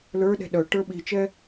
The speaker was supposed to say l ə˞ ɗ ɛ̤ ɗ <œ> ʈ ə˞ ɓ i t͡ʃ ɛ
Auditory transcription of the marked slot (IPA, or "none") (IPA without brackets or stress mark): œ